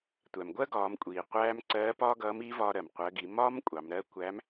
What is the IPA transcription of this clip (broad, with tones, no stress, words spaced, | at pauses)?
tʷæ˩mɡʷɜ˥ɡɒː˩˧mkʷʼiː˩ qʷæː˧m ǀɜː˧˥pɒː˥ɡʌː˧˥m i˧˥ vɒː˧ɾɜ˩m qʷɜ˩˧ɡi˩˧mɒː˥m kʷʼɑ˩˧mɾɜ˧˥ kʷæ˧˥m